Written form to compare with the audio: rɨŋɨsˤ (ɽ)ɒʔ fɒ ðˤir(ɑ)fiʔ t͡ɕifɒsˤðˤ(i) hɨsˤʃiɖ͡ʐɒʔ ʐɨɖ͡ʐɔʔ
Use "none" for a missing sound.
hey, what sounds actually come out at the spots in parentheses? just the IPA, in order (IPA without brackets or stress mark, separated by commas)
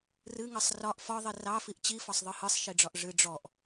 r, ɑ, ɨ